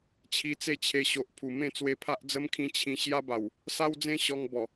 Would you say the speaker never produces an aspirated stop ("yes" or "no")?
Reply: no